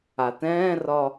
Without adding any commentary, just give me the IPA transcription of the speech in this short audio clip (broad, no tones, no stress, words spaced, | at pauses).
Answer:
atɛ̃ːrɒ